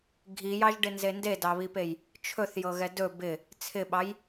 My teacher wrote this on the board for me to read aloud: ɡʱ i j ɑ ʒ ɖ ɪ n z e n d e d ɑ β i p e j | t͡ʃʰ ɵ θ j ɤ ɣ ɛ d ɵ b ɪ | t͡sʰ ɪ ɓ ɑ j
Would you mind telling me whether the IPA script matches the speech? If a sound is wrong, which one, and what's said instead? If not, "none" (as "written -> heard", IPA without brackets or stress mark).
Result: none